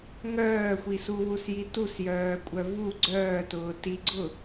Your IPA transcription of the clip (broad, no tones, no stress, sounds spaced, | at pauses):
ŋ œː xʷ i s u w u s j i t u s j œː kʷʼ œ v u ɡ͡ǀ œː t ʊː t i ɡ͡ǀ ʊ